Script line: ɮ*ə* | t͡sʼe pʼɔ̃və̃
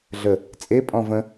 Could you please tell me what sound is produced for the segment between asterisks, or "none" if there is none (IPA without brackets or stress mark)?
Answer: ə